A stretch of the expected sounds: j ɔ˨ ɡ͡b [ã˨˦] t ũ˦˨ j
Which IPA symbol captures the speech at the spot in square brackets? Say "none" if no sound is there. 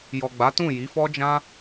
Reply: a˨˦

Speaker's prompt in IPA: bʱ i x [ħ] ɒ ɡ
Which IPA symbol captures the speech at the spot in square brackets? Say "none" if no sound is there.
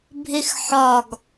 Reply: ħ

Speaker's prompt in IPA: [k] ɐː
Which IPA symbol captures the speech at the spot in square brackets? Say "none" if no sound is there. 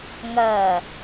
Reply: ŋ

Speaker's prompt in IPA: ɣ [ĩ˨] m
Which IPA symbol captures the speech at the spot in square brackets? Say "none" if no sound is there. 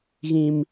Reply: ĩ˨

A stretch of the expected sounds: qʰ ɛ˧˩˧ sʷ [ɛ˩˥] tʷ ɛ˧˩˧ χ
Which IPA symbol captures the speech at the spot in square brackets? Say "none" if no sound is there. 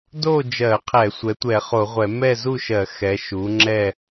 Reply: ɛ˩˥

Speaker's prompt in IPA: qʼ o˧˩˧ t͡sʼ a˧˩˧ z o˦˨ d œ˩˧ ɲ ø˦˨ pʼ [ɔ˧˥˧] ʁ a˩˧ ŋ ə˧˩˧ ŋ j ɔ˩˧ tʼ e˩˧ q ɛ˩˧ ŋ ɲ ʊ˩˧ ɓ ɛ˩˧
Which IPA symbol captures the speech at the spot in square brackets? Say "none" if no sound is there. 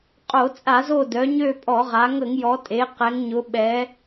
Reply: ɔ˧˩˧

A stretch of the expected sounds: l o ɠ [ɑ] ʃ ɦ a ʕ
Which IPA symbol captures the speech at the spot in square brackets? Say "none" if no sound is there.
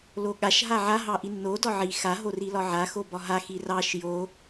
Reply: a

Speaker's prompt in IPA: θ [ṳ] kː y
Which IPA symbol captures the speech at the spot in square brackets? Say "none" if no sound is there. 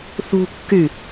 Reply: ṳ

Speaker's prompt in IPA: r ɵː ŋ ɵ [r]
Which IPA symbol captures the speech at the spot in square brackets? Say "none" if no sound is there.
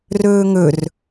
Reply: r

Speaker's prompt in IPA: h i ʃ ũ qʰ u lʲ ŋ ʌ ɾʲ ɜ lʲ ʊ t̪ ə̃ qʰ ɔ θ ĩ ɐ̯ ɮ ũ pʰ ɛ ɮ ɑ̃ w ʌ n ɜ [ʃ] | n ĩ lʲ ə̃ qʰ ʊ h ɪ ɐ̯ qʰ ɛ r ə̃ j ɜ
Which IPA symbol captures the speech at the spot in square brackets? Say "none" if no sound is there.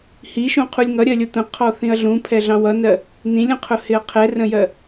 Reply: none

